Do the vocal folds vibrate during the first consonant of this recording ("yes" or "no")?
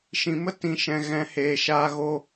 no